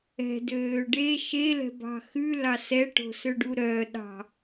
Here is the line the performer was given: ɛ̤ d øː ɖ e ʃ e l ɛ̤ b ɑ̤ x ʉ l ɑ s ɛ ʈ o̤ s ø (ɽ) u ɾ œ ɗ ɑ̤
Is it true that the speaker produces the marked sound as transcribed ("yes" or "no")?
no